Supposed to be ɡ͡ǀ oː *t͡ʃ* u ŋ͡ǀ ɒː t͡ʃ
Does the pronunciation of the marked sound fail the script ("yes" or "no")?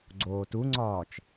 yes